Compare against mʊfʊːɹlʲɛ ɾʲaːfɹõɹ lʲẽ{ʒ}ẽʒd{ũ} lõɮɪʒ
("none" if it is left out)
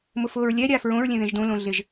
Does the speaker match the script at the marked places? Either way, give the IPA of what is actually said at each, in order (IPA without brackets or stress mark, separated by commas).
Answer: ð, õ